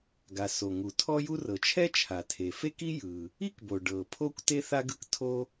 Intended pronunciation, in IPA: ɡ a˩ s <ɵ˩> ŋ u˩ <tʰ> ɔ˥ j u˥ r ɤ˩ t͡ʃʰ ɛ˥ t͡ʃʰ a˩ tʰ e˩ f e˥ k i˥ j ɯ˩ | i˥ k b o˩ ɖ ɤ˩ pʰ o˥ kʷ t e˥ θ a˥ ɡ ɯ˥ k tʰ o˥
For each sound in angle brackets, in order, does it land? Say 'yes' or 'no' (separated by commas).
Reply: no, yes